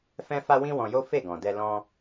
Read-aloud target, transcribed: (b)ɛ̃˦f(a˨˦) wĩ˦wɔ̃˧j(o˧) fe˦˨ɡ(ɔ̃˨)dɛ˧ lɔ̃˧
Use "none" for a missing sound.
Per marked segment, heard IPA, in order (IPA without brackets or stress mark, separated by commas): f, a˦, o˦, ɔ̃˨